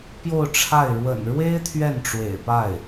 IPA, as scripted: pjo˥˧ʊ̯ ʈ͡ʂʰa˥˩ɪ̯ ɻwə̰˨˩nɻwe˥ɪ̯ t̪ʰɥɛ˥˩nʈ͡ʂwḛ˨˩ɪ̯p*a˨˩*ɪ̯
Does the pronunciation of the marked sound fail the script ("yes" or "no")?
yes